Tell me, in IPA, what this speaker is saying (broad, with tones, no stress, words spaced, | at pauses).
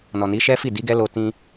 nɔ˨ni˨˦ʃɛ˦fi˦˨ di˨˦ɡɛ˦lo˧ tĩ˧